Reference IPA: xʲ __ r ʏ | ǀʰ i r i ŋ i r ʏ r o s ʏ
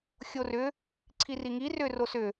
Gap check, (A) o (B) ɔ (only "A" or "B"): A